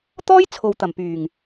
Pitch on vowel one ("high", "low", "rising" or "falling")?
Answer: high